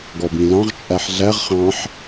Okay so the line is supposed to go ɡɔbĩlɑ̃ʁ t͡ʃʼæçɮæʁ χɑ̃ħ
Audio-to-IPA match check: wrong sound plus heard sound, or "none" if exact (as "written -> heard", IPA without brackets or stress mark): ç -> ħ